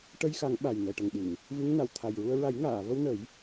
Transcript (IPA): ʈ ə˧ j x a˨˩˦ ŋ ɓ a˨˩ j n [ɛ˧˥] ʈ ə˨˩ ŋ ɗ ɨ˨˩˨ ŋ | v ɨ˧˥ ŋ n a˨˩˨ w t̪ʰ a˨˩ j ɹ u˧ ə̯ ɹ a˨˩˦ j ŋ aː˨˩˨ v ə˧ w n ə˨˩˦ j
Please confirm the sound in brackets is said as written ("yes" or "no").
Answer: no